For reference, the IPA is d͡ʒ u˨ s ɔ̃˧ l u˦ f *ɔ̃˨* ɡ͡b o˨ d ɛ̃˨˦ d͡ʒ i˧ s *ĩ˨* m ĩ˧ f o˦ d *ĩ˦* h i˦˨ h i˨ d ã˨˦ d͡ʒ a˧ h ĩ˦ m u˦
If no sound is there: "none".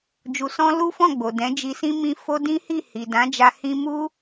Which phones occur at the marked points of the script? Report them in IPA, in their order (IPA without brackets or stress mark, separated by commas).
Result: ɔ̃˦˨, ĩ˦, ĩ˦